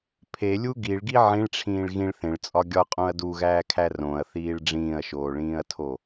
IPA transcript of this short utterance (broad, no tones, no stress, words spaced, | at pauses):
pʰelʲu ɡiɭɡi ʕĩɭʈ͡ʂʰĩːɭ ɣĩɭ θẽɭt͡sʼɒ ɡʲɒqʼõɐ̯ duɣæːkʰæ rõɐ̯θiːɭ ɖ͡ʐĩːɐ̯ʃoːɭĩːɐ̯tʰo